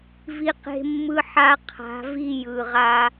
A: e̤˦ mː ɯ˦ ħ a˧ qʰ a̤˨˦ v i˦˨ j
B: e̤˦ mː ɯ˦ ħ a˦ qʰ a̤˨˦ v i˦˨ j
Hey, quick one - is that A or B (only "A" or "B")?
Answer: B